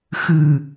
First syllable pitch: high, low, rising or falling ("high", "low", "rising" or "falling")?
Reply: low